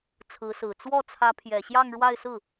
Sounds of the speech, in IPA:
t͡sʰ ɹ̩˧˥ s ɹ̩˨˩ t͡s w ɔ˥˩ t͡sʰ ä˧˥ pʰ j ɛ˨˩ ɕ j ɑ˥˧ ŋ ɻ w a˥˧ ɪ̯ s ɹ̩˥˩

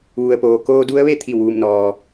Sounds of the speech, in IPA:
ʋ u˩ ə̯ p oː˩ k oː˧ d u˧˥ ə̯ ʋ e˥˨ t̪ʰ i˧˩ w ʋ u˧˩ m n ɔː˩

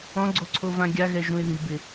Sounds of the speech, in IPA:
ɔ̃ ɡ͡ǀ o ǀʰ o v ã ɡʲ a ɣ ɛ ʒ ũ ɪ̯ ð i b ɪ

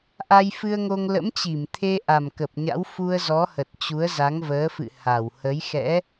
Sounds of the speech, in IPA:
ʔ a˧ j f ɨ˧ ə̯ ŋ o˧ ŋ l ə̰˧˥ m t͡ɕ i˧˩ m t̪ʰ e˧ ʔ a˨˩ m k ə˨˩ p̚ ɲ a̰˧˥ w f u˧ ə̯ z ɔ˨˦ h ə˨˩ t̚ t͡ɕ u˨˦ ə̯ z a˨˦ ŋ v əː˨˦ f ɨ̰˧˨ h a˧˩ w h ə˨˦ j x ɛ̰˧˥

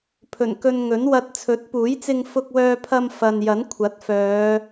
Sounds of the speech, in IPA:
pʰ ɵ˨˩ n k ɵ˧ n ŋ ɵ˨˥ n w ɐ˧ t̚ t͡sʰ ɵ˨˥ t̚ p uː˨˥ j t͡s ɪ˧ ŋ f ʊ˧ k̚ w œː˧ pʰ ɐ˧ m f ɐ˨ n j ɐ˨˥ n kʷʰ ɐ˨˥ t̚ f œː˨˧

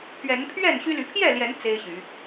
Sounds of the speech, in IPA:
pʰ ɥ ɛ˨˦ n pʰ ɥ ɛ˥˨ n ɕ y˦ l y˨˦ pʰ j ɛ˥˨ l j ɛ˨˦ n t͡s e˦ ɪ̯ ɕ y˨˦

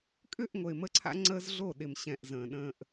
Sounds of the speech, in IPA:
kʼ ʏ˦˨ ʔ ŋʷ ə˨ ɪ̯ m ə˦ ǀʰ a̰˦ ŋ͡ǀ əː˦ z ɮ o˦˨ ɗ ɪ˨ m ɕ ɛ̃˨ ʔ z ə̃ː˨ ɗ ə̃ː˦ ʔ

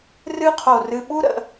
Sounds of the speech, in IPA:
r ɨ˥ qʰ o˧˩ r ɨ˧ ɓ u˥ ɾ ə̰˩˧

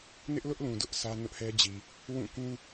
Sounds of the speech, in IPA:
n ɪ˦ ʔ l ʊ˦ ʔ l ũ˨ d ʊ˦ ʔ s ä˦ n ʊ˦ ʔ h ɛ˦ d͡ʑ i˨ | w ũ˦˨ k ũ˦

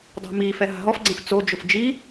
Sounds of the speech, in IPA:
dˤ a̤ m iː f ɛ ɦ a̤ ɦ ɔ f ɡ͡ǀ ɛ̃ f t͡s o d͡ʒ ʊ f d͡ʒ i

